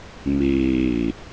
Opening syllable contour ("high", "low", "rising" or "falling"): low